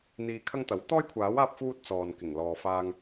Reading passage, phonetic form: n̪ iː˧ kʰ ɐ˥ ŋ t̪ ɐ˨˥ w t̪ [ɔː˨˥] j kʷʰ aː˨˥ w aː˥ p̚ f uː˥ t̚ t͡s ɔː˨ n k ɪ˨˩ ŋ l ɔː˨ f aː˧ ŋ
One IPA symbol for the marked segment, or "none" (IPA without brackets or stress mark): ɔː˥